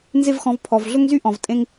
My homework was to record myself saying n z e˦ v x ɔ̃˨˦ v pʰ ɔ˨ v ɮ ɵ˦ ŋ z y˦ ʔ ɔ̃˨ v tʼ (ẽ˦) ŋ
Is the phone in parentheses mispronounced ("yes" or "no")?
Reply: no